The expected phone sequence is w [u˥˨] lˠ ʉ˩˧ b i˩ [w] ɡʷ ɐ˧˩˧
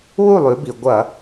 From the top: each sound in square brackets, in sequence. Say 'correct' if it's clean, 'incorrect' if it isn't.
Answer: correct, incorrect

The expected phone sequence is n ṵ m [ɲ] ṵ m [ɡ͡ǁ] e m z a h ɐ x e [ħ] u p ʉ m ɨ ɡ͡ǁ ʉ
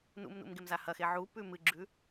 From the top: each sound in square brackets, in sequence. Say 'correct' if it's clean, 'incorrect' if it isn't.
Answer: incorrect, incorrect, incorrect

